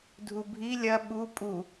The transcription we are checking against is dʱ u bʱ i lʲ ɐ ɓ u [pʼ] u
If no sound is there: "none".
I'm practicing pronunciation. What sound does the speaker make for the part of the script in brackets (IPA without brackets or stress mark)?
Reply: pʼ